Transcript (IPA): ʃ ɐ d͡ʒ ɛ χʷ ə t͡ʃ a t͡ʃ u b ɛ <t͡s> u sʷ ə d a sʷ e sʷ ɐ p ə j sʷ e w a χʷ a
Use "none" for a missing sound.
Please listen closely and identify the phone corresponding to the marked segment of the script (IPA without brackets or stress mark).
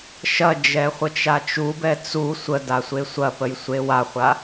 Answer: t͡s